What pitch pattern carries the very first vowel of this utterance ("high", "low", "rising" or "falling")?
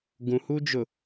low